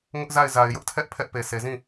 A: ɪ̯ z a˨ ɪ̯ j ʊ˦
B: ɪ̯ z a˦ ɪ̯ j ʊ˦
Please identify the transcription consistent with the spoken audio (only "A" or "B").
A